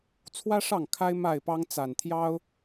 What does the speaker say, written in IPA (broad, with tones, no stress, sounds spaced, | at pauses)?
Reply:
t͡sʰ w ä˦ ʂ ɑ˥˨ ŋ kʰ a˦ ɪ̯ m a˥˨ ɪ̯ p ɑ˦ ŋ t͡s a˨˩ n t̪ʰ j ɑ˦ ʊ̯